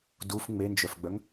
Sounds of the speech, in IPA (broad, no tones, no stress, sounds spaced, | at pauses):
d u f ŋ͡m e n d͡ʒ œ f ɡ͡b œ ŋ